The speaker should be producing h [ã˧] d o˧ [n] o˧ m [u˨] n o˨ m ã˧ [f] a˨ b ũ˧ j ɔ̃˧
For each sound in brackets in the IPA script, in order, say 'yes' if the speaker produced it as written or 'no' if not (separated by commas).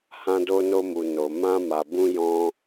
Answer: yes, yes, yes, no